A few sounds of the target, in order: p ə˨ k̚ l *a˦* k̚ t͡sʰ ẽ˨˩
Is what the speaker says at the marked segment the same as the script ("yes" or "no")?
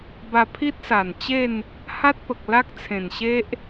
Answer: yes